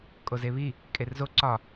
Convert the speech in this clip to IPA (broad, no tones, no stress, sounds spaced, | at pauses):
kʼ o z e β i | kʼ e r z o ǀ ɒ